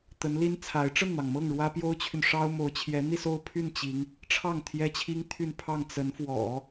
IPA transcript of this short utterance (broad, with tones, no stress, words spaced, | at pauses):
t̪ə˧˥nli˥n t͡sʰa˧˥ɪ̯ ʈ͡ʂə˥˩nn̪ɑ˩ŋmɤ˥˩ŋ ɻwä˥ pjo˥ʊ̯t͡ɕʰy˨nʂɑ˥ʊ̯mo˧˥ʊ̯ t͡ɕʰjɛ˧˥n̪i˥˧so˥˧ʊ̯pʰy˥˩n t͡ɕi˧˥ŋ | ʈ͡ʂʰɑ˥˩ŋ t̪ʰjɛ˥t͡ɕʰi˥ŋt̪ʰy˥˧npʰɑ˥˩ŋ t͡sə˧˥nfwɔ̰˨˩˦